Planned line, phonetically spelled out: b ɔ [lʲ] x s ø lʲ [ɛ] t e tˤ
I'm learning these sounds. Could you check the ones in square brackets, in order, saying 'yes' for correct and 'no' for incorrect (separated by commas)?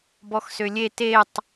no, no